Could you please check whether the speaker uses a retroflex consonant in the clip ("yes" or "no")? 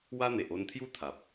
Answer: no